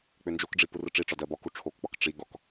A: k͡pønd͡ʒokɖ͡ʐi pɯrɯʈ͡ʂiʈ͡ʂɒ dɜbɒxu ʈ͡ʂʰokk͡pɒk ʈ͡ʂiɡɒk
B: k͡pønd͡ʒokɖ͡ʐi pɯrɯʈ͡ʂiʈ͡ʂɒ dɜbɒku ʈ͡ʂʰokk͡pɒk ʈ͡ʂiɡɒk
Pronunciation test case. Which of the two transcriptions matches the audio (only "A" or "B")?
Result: B